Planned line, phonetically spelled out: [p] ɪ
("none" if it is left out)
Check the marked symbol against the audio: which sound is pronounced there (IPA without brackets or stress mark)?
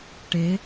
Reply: ʈ